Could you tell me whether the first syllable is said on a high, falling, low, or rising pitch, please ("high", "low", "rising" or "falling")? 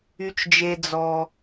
low